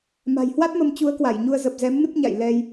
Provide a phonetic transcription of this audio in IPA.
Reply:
m a̤˨˩ j h w a˦˥ t̚ m ə˧ m t͡ɕ u˨˦ ə̯ k w a˧˩ j ɲ u˧ ə̯ z ə˨˩ p̚ z ɛ˨˦ m n ɨ˦˥ p̚ ɲ a̰˧˨ j l ɛ˧ j

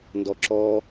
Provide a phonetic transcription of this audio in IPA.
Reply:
n d ɔ ǁ ɔ

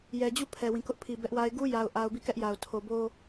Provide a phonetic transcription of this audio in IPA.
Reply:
j ɛ˨ d͡ʑ u˦˨ pʰ ɛ˨ w ĩ˨ k ʊ˦ ʔ pʰ i˨ b ɛ˦ ʔ w a˦ ɪ̯ ɡ u˦ j a˨ ʊ̯ ʔ a˨ ʊ̯ b i˦˨ k ɛ˦ ʔ j a˨ ʊ̯ tʰ o˨ b o˦

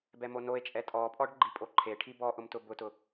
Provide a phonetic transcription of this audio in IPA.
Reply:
b ɛ m o n o e̯ t͡ʃʼ ɛ tʼ ɔ pʼ ɔ ɖ ɡ͡ǃ i pʼ o ǃʰ e ʈʰ i b ɔ ʔ ʊ m t ʊ b ʊ t ʊ

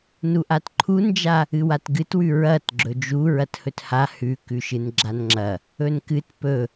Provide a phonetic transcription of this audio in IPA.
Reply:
n u ʔ a t ǃʰ u n d͡ʒ a | ɨ w a t ɡ ɨ t w ʉ ɹ ɐ t ɡ͡ǁ ɵ d͡ʒ u ɹ ɐ t h ɵ t h a h ʉ k ʉ ʃ ɨ n ɡ͡ǁ a n ŋ͡ǁ ɐ | ɵ n k ɨ t p ɵ

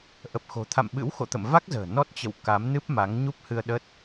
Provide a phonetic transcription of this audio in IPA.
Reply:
ʔ ə˨˩ p̚ x o̤˨˩ t̪ʰ a̰˧˨ m ɓ ɨ̰˧˥ w x o̰˧˨ t̪ ə̰˧˨ m v a˦˥ k̚ z ə̤ː˨˩ n ɔ˦˥ t̚ t͡ɕ ə̰˧˨ w k a˨˦ m n ɨ˦˥ p̚ m a˨˦ ŋ ɲ u˦˥ p̚ h ɨ˧ ə̯ ɗ ə˦˥ t̚

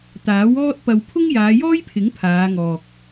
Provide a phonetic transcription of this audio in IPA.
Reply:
t̪ aː˨˥ w ɔː˥ t̚ p ɐ˧ w pʰ ʊ˥ ŋ j aː˨˧ j ɔː˥ j pʰ ɪ˨˥ ŋ pʰ aː˨˧ ŋ ɔː˨ k̚

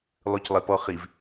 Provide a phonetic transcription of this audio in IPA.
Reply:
lˠ ʉ c lˠ e p ɔ χ i v

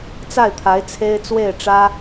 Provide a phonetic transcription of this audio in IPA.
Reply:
t͡s a˥˩ ɪ̯ t̪ʰ a˧˥ ɪ̯ t͡sʰ e˥ ɪ̯ t͡s w e˥˩ ɪ̯ ʈ͡ʂ ä˥

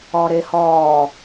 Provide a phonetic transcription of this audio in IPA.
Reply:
ɔː ɾ e h ɔː

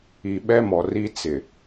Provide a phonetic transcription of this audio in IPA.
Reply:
i˨ ɓ ɛ˦ m ɔ˨ r i˦ t͡s ɪ˨

